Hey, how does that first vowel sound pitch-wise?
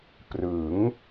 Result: rising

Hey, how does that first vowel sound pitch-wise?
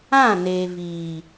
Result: falling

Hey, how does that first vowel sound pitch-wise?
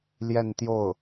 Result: falling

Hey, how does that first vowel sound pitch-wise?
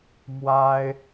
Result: high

